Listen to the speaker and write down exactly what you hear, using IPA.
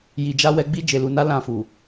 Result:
j i˧ d͡ʒ a˦ w ɛ˦ ɡ͡b i˦ d͡ʒ e˧ l u˧ n a˦ l ã˦˨ f u˨

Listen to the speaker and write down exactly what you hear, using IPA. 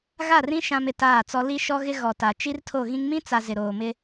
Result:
ɣ a˦˨ r ĩ˦ ʃ ã˦ m ɪ˨ t aː˦˨ t͡s ɔ˦ l i˦ ʃ ɔ˦ ɣ ɪ˦ ɣ ɔ˨ t a˨ t͡ʃ i˦ r tʰ o˦˨ ɣ ĩ˦ ŋ m ĩ˦ t͡s a˨ z ɪ˨ ɾ oː˨ m ɪ˦

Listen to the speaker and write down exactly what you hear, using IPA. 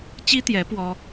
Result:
t͡ɕ i˥ t̪ j ɛ˧˥ p w ɔ˥

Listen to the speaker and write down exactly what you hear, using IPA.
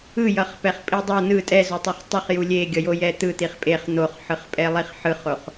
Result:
ɯ j ʌ χ p ɛ χ pʼ i dˤ ʌ n ɯ tʼ ɛ z o tˤ o χ tˤ ɯ χ j u lʲ e ɡʲ ʌ j o j ɛ t̪ ɯ t̪ i χ pʼ e χ n̪ o χ ħ ɯ χ pʼ ɛ lˠ i χ ħ ɯ χ o χ

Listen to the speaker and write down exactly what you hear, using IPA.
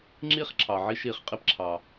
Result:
ŋ͡ǁ iː˥ χ ǁʰ ɑ˩ ʕ i˦ ʃ iː˨ χ qʼ i˦ p ǁʰ ɑ˩

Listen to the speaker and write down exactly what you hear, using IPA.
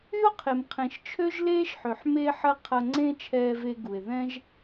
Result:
y˦ o̯ qʰ e˨ m qʰ ẽ˨ ʃ t͡ʃʰ ø˦ ʒ l eː˦ ʃ ħ ø˨ ħ m e˧ ħ ɐ˧ qʰ ɐ˧ ŋ͡ǀ ẽ˦ t͡ʃʰ ɛː˧ v e˧ ɡ u˨ e̯ ð ɛ̃˦ ʒ

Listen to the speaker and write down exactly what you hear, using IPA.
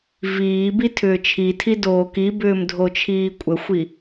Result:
v iː b i tʰ ʏː t͡ʃʰ i tʰ i d oː k i b ʏː m dʱ o t͡ʃʰ iː kʷʼ ə xʷ i

